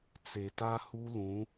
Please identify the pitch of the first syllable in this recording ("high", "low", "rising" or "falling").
low